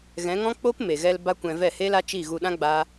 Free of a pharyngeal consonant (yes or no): yes